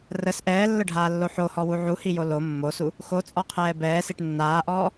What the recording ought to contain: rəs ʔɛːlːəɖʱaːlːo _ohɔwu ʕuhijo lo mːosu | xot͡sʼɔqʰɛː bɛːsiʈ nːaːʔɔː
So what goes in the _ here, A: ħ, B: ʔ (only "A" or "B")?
A